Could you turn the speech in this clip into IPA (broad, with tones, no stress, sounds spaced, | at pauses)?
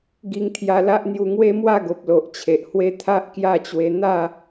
ɡ i˧ ŋ t̪ʰ j a˧ l a˦ ʔ n̪ j u˧ ŋ w e˦ m w a˥˧ ɡ o˨ p̚ l o˨ ʔ t͡ɕʰ e˨ ʔ h w e˦ t̪ʰ a˦ ʔ k j a˥˧ t͡ɕ w e˧ n̪ a˥˧